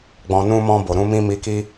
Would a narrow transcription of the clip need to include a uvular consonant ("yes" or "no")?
no